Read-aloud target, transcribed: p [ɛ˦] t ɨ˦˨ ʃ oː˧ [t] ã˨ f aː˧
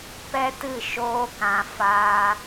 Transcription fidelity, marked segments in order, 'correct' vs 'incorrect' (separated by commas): correct, incorrect